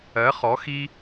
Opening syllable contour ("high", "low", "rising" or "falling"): rising